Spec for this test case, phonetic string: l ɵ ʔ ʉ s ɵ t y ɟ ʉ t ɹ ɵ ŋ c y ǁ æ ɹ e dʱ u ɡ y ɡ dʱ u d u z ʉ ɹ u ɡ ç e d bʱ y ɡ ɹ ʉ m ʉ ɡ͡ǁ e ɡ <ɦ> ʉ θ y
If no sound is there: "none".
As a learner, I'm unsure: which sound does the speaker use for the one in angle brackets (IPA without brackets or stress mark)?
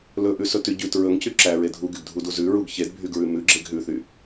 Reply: ɦ